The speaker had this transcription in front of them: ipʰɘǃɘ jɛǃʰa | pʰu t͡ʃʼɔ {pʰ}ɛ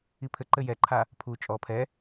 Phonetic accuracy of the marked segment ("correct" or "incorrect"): correct